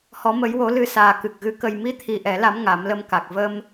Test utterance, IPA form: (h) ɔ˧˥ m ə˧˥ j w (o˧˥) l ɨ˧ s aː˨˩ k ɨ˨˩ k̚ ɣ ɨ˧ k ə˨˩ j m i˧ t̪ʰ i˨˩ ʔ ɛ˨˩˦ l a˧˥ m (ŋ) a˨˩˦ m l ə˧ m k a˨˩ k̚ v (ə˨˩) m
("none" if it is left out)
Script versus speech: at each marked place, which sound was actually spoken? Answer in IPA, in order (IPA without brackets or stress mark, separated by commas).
h, o˧˥, ŋ, ə˧